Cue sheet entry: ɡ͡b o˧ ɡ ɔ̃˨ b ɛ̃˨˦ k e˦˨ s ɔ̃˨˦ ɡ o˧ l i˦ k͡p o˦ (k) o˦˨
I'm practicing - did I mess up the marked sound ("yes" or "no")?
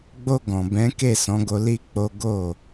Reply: yes